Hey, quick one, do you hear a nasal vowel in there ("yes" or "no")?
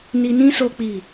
yes